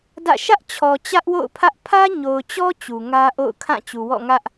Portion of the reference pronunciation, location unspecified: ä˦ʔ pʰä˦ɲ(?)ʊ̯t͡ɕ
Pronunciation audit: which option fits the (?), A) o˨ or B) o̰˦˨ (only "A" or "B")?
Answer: A